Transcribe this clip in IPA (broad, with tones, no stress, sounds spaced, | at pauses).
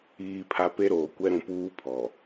iː˨ pʰ a˨ p e˦ ɾ oː˨ kʷ ɛ˦ ɾ ũ˨ p uː˦ pʰ ɔ˨